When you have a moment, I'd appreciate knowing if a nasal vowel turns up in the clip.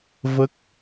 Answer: no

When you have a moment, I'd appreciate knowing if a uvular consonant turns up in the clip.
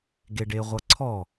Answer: yes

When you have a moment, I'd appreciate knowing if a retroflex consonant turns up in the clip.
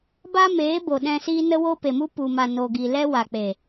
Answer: no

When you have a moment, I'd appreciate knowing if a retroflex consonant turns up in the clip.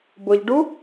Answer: yes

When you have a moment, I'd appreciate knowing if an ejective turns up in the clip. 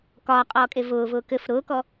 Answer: yes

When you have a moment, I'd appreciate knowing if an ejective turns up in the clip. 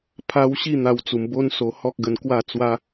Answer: no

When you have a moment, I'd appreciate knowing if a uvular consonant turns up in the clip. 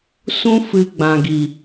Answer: no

